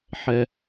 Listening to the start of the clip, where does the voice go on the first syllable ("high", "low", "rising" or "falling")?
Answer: low